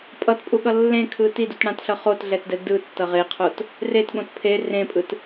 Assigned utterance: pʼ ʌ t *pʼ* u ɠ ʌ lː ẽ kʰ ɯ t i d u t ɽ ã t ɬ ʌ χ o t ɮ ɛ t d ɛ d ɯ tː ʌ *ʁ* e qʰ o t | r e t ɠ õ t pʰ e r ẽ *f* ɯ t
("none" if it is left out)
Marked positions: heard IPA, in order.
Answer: pʼ, ʁ, pʼ

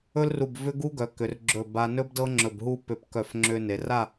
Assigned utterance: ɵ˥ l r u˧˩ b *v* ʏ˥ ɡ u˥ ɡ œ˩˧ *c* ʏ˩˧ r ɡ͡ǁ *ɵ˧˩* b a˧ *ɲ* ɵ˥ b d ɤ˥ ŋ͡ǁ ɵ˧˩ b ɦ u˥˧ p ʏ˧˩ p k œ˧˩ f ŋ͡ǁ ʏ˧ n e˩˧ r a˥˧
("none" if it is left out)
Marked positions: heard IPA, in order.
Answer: v, k, ɵ˧˩, n

